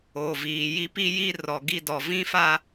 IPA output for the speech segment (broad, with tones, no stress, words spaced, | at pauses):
oː˨viː˨ji˦ pi˦ji˦ rɔ˨ɡi˦dɔ˨ vĩ˦fa˦